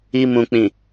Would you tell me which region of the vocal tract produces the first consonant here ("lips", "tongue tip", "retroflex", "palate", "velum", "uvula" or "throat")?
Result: lips